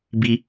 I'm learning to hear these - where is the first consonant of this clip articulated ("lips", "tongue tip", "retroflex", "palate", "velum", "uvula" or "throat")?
lips